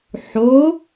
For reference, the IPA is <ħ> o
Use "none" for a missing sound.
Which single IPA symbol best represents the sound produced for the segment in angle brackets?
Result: ħ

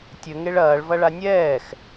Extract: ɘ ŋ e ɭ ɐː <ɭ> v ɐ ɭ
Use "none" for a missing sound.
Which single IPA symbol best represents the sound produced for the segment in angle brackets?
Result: ɭ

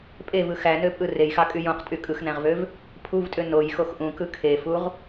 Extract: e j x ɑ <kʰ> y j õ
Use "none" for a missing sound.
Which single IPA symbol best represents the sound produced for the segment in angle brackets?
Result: kʼ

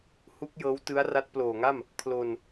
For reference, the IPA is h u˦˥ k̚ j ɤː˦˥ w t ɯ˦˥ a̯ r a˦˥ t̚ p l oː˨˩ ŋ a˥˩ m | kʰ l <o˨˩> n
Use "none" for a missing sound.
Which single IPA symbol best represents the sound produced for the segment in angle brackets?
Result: o˧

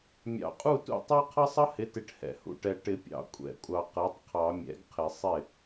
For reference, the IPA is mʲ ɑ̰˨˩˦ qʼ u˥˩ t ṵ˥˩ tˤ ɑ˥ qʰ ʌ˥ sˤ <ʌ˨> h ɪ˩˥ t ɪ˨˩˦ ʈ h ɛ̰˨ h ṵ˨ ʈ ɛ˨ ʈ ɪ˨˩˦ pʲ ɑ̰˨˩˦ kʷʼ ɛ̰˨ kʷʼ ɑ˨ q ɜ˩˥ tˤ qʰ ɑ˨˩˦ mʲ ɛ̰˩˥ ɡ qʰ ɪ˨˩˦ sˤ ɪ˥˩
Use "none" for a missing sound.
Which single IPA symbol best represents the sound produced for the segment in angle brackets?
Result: ʌ˥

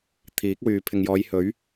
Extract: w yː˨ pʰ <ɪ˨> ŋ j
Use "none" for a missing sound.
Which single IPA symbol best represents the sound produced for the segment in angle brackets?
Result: ɪ˨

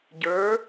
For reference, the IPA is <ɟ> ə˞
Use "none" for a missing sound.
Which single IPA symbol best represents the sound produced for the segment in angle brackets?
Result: ɟ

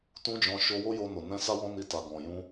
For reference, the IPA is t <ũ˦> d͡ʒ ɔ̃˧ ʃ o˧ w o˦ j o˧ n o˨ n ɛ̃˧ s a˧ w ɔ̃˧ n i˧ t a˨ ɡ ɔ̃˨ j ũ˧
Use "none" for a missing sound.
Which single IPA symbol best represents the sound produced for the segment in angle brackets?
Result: ũ˦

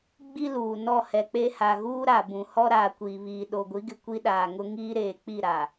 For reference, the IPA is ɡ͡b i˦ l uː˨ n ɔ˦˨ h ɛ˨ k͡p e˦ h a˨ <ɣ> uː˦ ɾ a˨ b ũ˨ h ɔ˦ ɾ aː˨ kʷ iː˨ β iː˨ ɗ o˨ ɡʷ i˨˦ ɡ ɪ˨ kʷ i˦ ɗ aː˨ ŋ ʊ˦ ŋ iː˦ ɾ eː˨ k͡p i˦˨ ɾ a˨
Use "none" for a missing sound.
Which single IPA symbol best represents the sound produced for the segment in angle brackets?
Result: ɣ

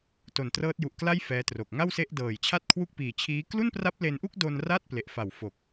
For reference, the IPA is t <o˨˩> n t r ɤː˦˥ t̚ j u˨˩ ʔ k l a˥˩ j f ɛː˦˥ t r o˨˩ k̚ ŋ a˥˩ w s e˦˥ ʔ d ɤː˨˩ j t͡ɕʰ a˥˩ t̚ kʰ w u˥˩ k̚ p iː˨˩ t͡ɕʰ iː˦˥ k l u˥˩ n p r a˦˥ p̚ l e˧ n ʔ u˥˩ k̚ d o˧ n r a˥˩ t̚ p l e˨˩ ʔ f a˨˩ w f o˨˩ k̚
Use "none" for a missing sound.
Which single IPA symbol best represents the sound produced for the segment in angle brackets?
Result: o˨˩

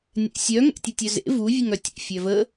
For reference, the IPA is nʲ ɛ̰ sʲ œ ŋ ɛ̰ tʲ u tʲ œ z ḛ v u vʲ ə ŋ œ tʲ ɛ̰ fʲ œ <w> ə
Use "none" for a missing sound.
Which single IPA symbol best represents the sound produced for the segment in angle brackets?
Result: v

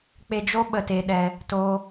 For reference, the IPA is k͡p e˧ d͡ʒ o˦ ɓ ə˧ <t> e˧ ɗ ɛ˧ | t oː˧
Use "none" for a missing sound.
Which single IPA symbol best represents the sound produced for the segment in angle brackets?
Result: t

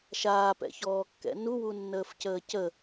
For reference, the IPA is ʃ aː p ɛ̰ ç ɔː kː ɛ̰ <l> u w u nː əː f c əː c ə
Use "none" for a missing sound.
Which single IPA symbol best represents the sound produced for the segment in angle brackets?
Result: n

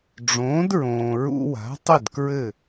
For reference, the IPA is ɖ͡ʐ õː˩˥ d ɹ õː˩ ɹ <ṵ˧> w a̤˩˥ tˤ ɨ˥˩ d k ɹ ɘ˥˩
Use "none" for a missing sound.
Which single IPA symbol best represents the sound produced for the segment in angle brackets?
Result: ṵ˧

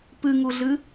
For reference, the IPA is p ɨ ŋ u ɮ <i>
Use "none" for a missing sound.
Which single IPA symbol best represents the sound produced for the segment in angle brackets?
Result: ɨ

